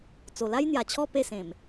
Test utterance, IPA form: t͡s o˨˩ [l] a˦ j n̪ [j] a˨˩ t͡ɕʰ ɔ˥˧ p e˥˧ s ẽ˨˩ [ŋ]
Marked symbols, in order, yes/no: yes, yes, no

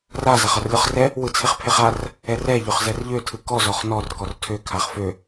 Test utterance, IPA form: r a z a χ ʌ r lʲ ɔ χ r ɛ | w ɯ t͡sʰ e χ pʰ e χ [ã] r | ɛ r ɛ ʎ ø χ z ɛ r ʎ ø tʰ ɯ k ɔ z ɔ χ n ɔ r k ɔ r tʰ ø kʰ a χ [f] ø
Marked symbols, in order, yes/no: no, yes

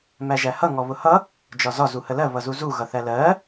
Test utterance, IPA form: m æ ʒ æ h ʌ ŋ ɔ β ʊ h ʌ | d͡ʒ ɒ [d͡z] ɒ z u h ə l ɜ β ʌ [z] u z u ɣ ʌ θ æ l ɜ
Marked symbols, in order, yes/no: no, yes

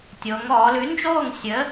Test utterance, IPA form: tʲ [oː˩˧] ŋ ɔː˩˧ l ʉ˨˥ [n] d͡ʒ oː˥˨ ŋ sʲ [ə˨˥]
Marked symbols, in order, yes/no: yes, yes, yes

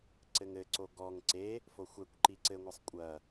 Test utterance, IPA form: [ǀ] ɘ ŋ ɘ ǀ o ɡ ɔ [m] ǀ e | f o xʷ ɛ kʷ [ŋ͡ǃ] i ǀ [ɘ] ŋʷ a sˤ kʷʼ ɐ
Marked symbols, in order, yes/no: yes, no, no, yes

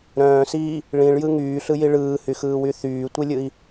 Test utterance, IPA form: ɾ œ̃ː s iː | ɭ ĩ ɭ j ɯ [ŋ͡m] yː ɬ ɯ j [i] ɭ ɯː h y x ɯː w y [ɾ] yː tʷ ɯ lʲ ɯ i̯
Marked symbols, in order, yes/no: no, yes, no

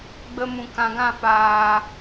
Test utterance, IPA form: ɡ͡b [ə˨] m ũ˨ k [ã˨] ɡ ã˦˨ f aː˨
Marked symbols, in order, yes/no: no, yes

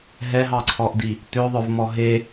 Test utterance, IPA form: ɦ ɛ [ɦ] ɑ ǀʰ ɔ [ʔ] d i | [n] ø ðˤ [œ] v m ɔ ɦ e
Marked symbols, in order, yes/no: yes, yes, no, yes

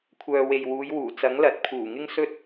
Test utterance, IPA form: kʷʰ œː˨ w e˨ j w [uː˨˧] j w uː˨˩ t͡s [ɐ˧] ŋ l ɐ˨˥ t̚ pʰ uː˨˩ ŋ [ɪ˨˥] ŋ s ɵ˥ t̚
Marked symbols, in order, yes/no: yes, no, no

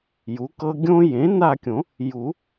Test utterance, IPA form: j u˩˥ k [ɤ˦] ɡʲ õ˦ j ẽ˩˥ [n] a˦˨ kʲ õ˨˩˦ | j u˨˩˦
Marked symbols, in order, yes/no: yes, yes

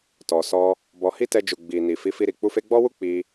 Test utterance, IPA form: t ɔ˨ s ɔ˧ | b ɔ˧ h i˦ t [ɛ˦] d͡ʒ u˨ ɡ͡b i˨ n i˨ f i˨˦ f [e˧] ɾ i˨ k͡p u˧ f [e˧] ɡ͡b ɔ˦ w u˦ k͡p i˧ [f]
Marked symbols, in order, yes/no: no, no, yes, no

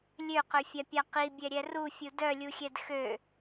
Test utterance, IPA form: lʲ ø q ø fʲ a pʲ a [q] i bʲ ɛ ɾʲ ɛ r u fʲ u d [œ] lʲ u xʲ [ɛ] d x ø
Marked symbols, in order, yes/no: yes, yes, yes

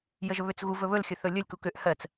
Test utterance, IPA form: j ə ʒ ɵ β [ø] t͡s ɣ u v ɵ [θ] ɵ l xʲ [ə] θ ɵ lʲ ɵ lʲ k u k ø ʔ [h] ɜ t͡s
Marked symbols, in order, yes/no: yes, no, no, yes

